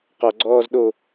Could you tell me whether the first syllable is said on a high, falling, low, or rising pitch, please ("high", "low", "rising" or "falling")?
low